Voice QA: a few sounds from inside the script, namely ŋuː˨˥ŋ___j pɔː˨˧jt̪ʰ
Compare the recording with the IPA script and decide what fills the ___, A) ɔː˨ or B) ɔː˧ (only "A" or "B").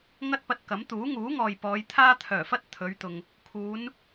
A